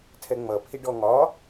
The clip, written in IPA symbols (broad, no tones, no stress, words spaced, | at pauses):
tʰɛŋ͡mʌ pʰiɖɔŋɒ